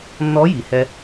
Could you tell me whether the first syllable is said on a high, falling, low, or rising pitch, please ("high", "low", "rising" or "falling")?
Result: rising